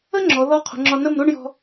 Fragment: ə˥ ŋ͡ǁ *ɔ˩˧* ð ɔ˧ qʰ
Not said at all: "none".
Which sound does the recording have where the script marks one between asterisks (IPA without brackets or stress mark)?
ɔ˩˧